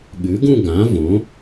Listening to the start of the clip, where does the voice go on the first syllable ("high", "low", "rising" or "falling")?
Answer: rising